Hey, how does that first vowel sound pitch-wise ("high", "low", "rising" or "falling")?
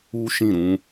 high